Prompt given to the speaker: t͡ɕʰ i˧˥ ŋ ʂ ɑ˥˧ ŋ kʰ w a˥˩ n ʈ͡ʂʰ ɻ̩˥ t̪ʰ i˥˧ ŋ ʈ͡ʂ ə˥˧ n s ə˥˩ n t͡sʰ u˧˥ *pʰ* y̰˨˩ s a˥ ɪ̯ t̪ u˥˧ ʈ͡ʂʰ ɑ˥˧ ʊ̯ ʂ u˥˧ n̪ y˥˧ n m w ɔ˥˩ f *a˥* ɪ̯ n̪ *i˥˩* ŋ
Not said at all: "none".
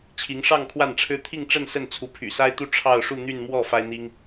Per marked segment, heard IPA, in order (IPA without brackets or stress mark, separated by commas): pʰ, a˥, i˥